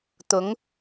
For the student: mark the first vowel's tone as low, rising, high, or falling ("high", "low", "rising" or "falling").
rising